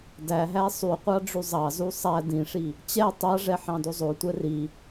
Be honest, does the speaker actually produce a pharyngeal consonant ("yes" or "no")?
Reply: yes